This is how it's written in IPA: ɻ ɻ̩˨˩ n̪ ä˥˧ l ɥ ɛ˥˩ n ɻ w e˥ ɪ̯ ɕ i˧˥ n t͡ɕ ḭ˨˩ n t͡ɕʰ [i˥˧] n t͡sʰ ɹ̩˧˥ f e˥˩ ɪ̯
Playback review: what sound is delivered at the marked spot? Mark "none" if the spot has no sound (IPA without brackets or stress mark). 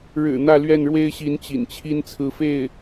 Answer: i˥